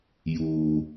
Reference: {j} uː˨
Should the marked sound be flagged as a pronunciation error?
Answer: no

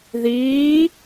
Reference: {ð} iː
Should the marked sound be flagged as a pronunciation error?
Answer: no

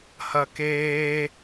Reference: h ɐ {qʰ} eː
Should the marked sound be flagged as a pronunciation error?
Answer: yes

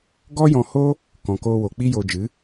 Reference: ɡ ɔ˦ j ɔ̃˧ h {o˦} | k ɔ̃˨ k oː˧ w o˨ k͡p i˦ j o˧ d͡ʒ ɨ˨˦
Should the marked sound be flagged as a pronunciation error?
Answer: no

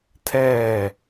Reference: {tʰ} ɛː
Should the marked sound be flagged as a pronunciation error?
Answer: no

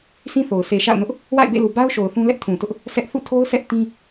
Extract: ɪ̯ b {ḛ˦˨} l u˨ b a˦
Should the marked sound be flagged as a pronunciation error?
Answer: no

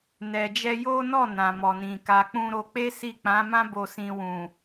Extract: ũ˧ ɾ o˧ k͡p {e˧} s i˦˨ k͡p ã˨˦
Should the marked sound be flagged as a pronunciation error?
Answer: yes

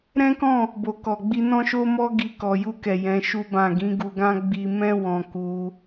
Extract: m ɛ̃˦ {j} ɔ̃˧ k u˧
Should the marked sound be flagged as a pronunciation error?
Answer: yes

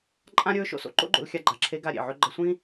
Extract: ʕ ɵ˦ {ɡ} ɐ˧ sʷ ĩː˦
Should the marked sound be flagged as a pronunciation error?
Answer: yes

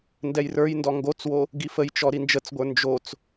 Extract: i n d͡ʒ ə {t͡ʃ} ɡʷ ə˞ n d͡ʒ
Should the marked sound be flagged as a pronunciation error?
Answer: yes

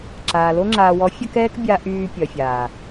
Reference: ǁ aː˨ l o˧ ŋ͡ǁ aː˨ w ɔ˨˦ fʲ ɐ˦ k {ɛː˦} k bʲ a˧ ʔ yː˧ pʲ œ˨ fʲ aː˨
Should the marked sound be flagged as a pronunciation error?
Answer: no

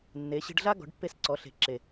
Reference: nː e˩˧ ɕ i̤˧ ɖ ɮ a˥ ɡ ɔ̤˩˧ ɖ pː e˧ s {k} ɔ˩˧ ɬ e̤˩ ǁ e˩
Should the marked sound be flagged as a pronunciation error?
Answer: yes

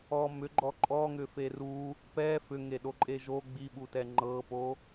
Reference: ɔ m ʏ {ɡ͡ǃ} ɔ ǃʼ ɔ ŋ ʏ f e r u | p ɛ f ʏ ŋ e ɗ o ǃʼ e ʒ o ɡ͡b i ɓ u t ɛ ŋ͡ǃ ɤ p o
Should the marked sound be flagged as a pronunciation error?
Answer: no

